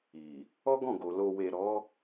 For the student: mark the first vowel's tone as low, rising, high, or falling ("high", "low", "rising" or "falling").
low